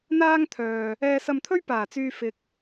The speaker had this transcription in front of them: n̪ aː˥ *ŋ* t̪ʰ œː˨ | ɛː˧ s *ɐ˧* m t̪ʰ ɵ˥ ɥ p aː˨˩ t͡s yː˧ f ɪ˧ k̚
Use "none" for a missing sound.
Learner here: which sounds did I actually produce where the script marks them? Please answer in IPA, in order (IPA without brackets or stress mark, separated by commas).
ŋ, ɐ˧